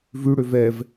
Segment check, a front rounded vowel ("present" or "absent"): present